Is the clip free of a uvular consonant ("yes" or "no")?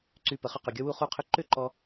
no